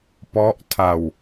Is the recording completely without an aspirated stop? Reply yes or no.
no